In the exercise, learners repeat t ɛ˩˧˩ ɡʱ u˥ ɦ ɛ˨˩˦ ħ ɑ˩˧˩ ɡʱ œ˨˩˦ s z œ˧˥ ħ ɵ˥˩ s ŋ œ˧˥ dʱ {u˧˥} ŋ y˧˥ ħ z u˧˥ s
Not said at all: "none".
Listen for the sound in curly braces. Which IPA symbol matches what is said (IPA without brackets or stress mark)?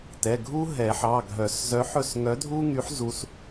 u˥